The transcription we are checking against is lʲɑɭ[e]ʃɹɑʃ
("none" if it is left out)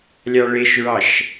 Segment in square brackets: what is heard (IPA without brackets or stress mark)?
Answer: e